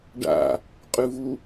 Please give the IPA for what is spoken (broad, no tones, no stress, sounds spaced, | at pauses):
ɖ a̰ | qʼ ʉ v u